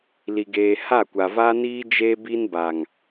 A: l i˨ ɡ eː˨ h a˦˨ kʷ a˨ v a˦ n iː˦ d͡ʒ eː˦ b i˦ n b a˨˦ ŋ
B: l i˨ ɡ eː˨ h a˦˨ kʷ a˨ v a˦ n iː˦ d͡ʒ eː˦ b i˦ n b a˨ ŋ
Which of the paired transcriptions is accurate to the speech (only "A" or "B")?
B